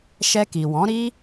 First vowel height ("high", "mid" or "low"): mid